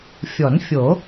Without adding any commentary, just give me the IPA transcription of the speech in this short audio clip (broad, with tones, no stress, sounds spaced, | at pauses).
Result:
fʲ ɔ˨˩˦ n fʲ o˨˩˦